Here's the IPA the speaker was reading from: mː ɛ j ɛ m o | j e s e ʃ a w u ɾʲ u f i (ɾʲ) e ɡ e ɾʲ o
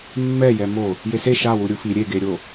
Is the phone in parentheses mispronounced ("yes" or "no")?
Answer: no